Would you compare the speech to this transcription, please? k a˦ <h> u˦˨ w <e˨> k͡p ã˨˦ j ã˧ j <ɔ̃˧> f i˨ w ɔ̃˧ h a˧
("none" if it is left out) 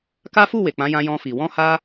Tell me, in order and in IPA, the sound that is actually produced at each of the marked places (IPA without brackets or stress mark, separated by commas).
f, e˨, ɔ̃˧